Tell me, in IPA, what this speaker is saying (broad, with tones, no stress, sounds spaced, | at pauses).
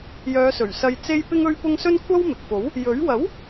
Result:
j œː˨˧ s ɵ˨˩ ɥ s ɐ˧ j t͡s e˥ j p ɪ˧ ŋ ɵ˧ ɥ p ʊ˧ ŋ s ɵ˥ n kʷʰ ɐ˥ w m ɪ˨ k̚ f o˨˥ w | j ɵ˨˥ ɥ w ɐ˨˥ w